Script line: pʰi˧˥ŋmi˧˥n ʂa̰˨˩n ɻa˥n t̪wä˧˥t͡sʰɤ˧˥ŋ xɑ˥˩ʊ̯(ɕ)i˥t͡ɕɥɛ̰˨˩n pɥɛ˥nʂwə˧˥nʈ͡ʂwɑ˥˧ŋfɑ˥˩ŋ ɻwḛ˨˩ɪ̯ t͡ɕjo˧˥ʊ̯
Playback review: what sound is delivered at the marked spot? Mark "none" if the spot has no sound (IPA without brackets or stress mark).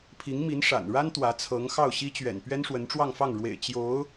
ɕ